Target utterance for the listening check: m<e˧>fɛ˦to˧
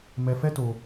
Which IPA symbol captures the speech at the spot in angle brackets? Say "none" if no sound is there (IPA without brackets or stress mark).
ɛ˧